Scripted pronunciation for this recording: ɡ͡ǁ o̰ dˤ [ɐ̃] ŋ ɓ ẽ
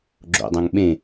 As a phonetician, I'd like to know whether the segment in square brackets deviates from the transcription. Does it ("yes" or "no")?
no